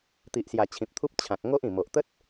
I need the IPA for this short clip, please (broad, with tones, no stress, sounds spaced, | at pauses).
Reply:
t̪ i˨ ʔ s j a˨˩ t͡ɕʰ ĩ˨ p̚ t̪ʰ u˦ p̚ t͡ɕʰ ã˨ k̚ ŋ o˦ ʔ ĩ˨˩ m o˨ ʔ t̪ ə˦ t̚